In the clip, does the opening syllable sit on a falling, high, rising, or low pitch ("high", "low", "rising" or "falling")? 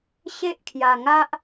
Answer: high